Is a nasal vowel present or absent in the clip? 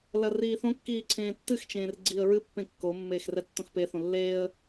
present